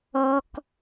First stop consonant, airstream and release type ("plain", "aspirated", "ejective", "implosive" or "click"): plain